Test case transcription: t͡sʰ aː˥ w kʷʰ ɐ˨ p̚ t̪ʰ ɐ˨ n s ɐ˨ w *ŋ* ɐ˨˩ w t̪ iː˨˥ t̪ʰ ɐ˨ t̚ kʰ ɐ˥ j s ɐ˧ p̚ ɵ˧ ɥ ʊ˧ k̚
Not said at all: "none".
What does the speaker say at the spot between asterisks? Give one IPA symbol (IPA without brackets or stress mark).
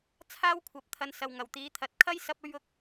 ŋ